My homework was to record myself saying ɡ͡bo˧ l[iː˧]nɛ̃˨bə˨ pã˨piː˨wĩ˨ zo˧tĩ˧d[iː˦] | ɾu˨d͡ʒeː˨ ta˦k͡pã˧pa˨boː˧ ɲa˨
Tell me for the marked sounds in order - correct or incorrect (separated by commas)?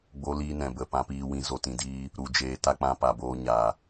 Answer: correct, correct